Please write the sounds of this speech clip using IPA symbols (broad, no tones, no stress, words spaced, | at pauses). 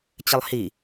t͡ɕɘlˠhi